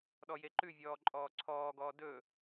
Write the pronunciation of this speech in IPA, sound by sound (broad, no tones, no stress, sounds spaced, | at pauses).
ɗ ɔ j e ǃ ʉ vʲ ɔː ǃʼ ɔː ǀʰ ɔː ɡ ɔː d ɵ